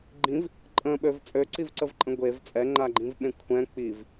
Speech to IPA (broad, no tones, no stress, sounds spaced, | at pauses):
ɡ͡ǃ ĩ v | ǃʼ ə̃ ɓ ø v t͡sʼ ø ǀ i v ǀ ə v ǃʼ ə̃ ɡʷ e v t͡sʼ ɛ ŋ͡ǃ a ɡ͡ǃ ĩ v ɓ ẽ kʷʰ ɛ̃ k͡p i v